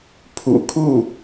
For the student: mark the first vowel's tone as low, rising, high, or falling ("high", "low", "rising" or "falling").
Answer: low